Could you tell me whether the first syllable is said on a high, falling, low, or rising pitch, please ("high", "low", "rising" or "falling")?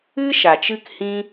high